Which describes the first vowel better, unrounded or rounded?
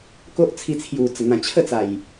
rounded